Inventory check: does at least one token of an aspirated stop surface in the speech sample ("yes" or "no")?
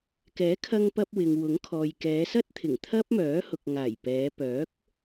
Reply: yes